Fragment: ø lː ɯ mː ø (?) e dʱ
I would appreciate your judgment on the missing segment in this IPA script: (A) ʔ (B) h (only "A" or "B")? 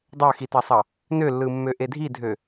A